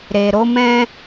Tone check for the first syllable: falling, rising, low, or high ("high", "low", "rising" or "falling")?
low